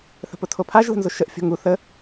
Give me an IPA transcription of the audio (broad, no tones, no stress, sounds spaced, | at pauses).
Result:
θ ə̤ p ʊ tʰ o pʰ a ʒ l ə̤ n z ʊ ʃ ə ʔ fʲ o̤ ŋ u θ ə